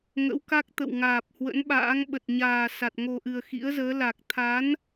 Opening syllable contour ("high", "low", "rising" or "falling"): rising